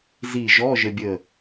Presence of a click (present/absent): absent